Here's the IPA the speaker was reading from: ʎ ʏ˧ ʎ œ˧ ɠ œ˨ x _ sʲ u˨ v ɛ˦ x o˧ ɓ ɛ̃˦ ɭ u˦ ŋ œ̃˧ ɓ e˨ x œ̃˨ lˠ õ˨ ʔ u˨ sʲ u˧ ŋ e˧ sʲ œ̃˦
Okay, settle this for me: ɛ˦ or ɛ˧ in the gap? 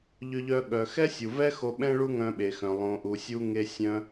ɛ˦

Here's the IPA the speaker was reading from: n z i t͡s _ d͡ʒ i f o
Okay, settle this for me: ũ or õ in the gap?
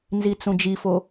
ũ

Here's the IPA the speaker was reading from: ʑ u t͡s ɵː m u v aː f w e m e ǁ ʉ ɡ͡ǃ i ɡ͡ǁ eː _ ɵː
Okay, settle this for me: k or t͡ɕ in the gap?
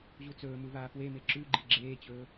t͡ɕ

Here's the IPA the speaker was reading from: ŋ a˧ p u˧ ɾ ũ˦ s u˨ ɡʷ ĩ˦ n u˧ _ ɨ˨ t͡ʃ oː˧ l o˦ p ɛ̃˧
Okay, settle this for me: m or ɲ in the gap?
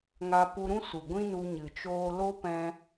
ɲ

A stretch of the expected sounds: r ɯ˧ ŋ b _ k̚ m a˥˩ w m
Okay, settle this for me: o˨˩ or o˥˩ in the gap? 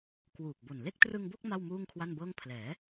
o˥˩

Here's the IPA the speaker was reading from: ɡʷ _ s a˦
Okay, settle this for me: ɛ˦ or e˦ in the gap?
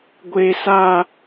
e˦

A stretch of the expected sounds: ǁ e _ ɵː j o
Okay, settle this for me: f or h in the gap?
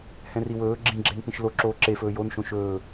f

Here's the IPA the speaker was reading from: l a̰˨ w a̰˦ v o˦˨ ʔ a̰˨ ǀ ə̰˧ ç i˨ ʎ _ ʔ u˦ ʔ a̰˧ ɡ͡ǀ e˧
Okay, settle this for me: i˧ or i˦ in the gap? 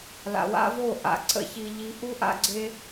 i˧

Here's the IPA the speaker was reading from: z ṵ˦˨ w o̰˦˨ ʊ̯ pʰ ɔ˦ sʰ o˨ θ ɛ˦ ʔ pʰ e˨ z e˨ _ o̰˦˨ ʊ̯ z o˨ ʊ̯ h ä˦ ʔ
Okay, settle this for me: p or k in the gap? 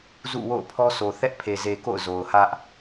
k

